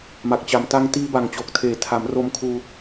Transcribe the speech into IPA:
m a˨˩ k̚ t͡ɕ a˨˩ m t a˧ ŋ t iː˦˥ b a˨˩ ŋ t͡ɕ o˨˩ k̚ tʰ eː˨˩ tʰ a˩˦ m r o˧ m kʰ uː˧

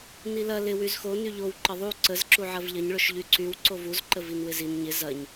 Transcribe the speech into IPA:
n i l ɐ l ɪ w y z x o n y ʎ o w ǃ ə ðˤ u ǀ ə z ǁ u ʕ ɐ v ʎ ɐ ɲ ɭ ʊ ʃ ʎ y ǀ y w ǀ o v u z ǃ ə v i n w ɪ z i n ɲ ɪ z ɐ ɲ

